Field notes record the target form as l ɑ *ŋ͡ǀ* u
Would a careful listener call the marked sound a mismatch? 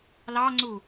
no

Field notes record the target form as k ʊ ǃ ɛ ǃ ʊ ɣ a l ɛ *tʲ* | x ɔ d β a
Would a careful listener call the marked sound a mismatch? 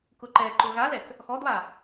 yes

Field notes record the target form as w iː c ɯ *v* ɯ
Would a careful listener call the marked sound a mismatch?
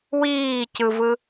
no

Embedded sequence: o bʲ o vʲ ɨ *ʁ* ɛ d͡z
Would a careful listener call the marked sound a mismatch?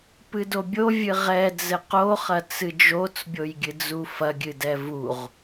no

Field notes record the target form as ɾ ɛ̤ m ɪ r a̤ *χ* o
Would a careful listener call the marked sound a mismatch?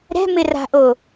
yes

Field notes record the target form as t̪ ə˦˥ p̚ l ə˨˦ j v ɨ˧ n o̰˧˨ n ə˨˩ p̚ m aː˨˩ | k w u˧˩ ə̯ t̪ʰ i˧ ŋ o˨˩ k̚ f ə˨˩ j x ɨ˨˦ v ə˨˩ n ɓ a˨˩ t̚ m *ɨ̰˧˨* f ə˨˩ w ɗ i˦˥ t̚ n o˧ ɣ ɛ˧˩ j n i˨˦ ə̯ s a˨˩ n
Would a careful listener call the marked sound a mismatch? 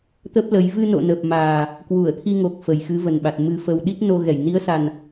yes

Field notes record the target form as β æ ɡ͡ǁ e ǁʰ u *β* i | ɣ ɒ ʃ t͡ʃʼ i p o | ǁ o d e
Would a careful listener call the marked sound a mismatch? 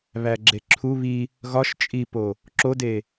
no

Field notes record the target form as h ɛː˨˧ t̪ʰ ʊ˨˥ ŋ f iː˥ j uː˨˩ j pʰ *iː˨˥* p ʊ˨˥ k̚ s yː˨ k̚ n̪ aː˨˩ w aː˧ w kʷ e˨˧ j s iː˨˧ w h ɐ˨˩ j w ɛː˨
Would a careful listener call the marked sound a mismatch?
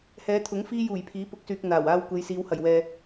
no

